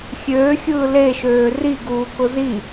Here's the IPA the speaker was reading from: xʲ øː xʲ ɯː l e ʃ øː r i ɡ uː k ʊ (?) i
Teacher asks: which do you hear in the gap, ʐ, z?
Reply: z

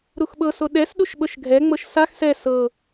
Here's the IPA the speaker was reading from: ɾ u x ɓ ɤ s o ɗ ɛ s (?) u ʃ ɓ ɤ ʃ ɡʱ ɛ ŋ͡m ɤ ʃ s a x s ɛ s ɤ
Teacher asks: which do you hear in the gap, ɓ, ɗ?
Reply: ɗ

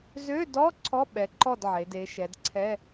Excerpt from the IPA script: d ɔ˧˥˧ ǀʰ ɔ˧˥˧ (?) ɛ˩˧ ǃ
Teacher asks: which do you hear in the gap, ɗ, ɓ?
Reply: ɓ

